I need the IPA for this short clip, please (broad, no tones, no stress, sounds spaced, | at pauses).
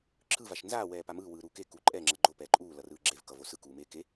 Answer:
ǁʰ ɯ v a ʃ n z aː w ɛː p a m ɯː w ɯː ɾ uː k e k u ǃʼ ɛ ŋ͡ǁ ʌ ɡ͡ǃ o p ɛː ǃʼ uː l ʌ r ɯː ɡ͡ǁ e v k ʌ v o s ɯ k uː m eː k e